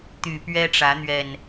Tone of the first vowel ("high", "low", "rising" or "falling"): low